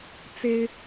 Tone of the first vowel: high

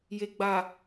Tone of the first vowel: low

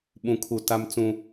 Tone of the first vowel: high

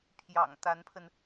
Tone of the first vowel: low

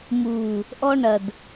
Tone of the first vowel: low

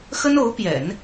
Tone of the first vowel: high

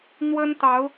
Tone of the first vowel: high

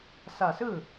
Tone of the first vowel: low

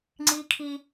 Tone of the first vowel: high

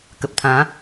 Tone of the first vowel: low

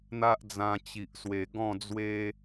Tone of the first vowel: high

